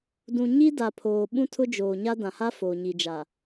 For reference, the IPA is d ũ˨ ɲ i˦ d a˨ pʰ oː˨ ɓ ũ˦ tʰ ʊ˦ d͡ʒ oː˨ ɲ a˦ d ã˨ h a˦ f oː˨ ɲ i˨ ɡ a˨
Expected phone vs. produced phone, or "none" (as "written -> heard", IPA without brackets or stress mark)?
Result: ɡ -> d͡ʒ